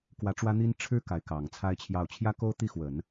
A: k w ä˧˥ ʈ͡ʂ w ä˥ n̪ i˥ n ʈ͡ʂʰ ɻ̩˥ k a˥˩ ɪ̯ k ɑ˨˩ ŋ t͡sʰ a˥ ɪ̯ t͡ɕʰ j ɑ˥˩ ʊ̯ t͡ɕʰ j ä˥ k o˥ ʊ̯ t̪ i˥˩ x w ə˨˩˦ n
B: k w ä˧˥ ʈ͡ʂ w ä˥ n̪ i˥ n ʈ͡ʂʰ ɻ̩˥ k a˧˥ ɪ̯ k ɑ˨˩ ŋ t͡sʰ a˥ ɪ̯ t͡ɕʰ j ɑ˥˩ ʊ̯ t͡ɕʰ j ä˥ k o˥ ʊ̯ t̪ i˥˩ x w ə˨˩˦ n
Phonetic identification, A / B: B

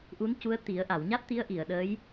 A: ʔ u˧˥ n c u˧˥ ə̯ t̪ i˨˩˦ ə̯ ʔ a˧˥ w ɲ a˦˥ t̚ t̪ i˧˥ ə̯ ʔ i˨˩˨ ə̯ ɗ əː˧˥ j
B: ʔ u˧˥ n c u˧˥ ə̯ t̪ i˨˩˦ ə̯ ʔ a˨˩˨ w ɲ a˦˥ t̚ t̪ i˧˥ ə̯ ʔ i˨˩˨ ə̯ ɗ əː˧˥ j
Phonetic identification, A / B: B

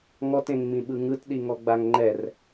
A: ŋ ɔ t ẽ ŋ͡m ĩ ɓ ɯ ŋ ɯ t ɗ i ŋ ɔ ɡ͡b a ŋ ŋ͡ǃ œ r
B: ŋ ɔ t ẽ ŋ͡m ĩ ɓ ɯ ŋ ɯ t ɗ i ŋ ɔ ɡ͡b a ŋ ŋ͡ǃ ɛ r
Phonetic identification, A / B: B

